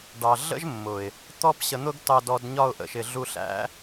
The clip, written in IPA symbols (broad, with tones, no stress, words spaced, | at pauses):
ɖɑ˨ɮə̰˦ʒmːʊ˨ɪ̯ | t̪ɔ˧pɕə˨n̪ʊ˧ɡ tɑ˧dɔ˧d ɲɒ˧ʊ̯ʔə̰˨ʃɪ˨ ɮu˧ɬæ̰˦